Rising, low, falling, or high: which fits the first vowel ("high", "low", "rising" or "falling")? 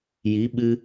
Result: rising